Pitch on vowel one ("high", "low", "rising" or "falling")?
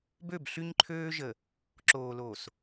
falling